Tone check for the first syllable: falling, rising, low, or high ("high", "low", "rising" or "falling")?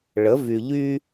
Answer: rising